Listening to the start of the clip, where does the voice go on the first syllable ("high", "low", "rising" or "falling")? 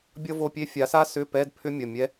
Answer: high